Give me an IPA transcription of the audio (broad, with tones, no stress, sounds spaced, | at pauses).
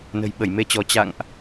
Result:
n ə̤˨˩ j ɓ ə˧˩ j m e˧ t͡ɕ ɔ˨˦ t͡ɕ a̰˧˨ ŋ ʔ